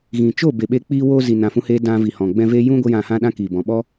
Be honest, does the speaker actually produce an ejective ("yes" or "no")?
no